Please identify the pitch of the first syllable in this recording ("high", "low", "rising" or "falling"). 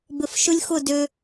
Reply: low